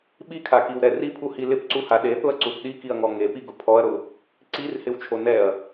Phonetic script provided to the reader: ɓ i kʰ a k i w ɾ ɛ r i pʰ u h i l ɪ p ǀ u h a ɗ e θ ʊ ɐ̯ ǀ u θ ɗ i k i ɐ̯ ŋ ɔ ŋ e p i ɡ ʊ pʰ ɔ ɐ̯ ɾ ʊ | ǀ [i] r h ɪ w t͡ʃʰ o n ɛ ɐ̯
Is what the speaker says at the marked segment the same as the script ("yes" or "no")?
yes